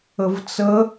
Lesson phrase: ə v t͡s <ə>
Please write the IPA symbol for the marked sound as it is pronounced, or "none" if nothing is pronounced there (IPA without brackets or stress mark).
ə